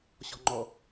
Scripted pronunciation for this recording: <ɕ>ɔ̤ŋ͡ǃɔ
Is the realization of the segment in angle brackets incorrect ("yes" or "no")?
no